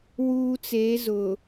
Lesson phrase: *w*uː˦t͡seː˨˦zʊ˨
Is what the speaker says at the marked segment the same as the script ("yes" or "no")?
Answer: yes